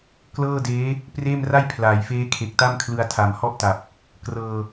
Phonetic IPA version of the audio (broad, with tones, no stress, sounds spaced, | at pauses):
k l ɤː˥˩ d eː˦˥ | p r eː˥˩ m r a˥˩ j pʰ l aː˩˦ j f eː˦˥ kʰ e˨˩ k̚ t a˥˩ m kʰ l ɯ˧ a̯ tʰ a˨˩ m h ɔ˥˩ ʔ t a˨˩ p̚ | k r ɤː˧